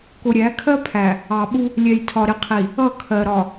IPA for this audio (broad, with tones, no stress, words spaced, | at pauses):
kʊ˨ɾʲæ˨˦kʰɜ˦pʰæ˨ | ɑ˨ɓu˦ | lʲɛ˨jtʰɒ˨ɾɪ˨qʰi˨ | ʌ˦˨kʰɜ˨ ɾɒ˨